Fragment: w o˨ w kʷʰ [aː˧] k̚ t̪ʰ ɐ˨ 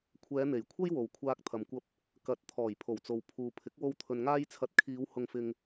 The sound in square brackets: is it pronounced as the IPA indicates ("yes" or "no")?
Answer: yes